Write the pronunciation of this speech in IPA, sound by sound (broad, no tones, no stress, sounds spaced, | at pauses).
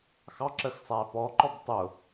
x ɑ ǁ ə x sˤ æ p ɔ ǃ ɔ b tˤ ʊ